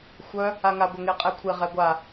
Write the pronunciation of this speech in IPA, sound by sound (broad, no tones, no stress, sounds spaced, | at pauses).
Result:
xʷ œ | a ŋ a ɡʷ a ŋ e qʼ ɛ kʷʰ e ʁ ɛ ɡʷ a